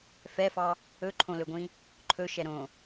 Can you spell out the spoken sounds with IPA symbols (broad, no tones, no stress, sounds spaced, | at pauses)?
f ɛ f ɑ | ɵ ǃʰ õ l ɵ ɡʷ ĩ | ǃʰ ɵ ʃ ɛ ɾ õ